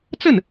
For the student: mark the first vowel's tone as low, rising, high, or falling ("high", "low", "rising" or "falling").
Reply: falling